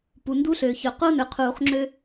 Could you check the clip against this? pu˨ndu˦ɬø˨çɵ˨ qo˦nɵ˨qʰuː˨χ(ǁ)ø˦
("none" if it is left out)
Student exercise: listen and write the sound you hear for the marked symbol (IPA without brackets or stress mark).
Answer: ŋ͡ǁ